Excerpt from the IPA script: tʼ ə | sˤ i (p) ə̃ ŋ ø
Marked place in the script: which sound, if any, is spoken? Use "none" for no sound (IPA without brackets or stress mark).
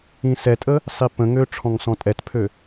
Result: p